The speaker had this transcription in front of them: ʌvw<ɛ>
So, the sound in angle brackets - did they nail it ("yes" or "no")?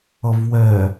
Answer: yes